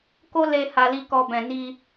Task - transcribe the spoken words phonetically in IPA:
k o˦ l e˧ h a˨ l i˨ k ɔ˨ b ɛ̃˨ n i˧

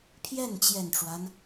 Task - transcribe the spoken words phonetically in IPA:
pʰ j ɛ˥˩ n t͡ɕ j ɛ˨˩ n ʈ͡ʂ w a˦ n

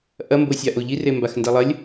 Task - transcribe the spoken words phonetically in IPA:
ʔ ɐ m b o sʲ a ʔ o ʎ i r e m b a x n d ɛ lˠ ɐ lʲ

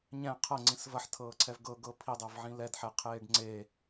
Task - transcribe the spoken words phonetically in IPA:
ɲ ɛ̃ qʰ ɤ ŋ͡ǀ ĩ s v ɐ ħ tʰ ɤː ǀʰ ɛ v ɡ ɤ ɡ ɤ pʰ i dˤ ɛ v ʕ ĩ l ɛ d ħ ɛ qʰ eː ɖ ŋ͡ǀ e

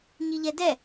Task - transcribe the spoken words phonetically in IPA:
ɲ i ʎ ɛ d ɛ

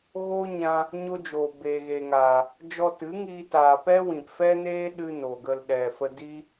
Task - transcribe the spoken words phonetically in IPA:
ɣ o˦ ɲ ã˧ | ɲ o˦ d͡ʒ oː˨ b eː˨ ɣ eː˨ ŋ aː˨ | d͡ʒ ɔ˧ t ɨ˨˦ ŋ iː˧ t aː˨ p ɛ˦ w ĩ˨ p f ɛ˦ n eː˦ ɗ ɨ˧ n o˨ ɡ ə˧ l ɗ ɛ˨ f ə˧ d i˦

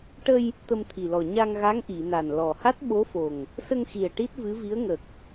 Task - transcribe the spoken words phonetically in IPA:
ʈ ə˧ j | t̪ ə˧ m t̪ʰ i˨˩ l ɔ˨˩ ɲ a˧ ŋ ɣ a˧˥ ŋ ʔ i˨˩˨ n a˨˩ n l ɔ˨˩ h a˦˥ t̚ ɓ o˧˥ f o˨˩ ŋ | s ə˧ ŋ x i˨˩ ə̯ ʈ i˦˥ t̚ v ɨ˧˥ v i˧˥ ə̯ ŋ ə˨˩ k̚

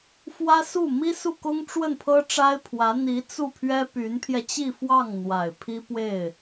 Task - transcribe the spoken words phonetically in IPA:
f w ä˥ s u˥˩ m i˥ s u˥˩ k ʊ˥ ŋ ʈ͡ʂ w ə˥˩ n pʰ ɤ˥ ʈ͡ʂ a˥ ɪ̯ pʰ w ä˧˥ n̪ i˧˥ t͡s u˥˩ pʰ ɥ ɛ˥ p y˧˥ n pʰ j ɛ˧ t͡ɕ i˥˧ f w ɑ˥˩ ŋ n̪ w a˨˩ ɪ̯ pʰ i˥ p w e˥˩ ɪ̯

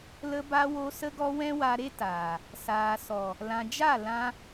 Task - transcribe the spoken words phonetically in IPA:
l ə˧ b a˧ w o˧ s ə˧ ɡ ɔ˧ w ɛ̃˦ w a˧ ɾ e˦ t aː˨ | s aː˨ s ɔ˨ | l ã˨ d͡ʒ a˦˨ l ã˧

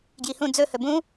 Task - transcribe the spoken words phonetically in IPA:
ɡ j i h ũ d͡z ɵ h ɵ b ũ

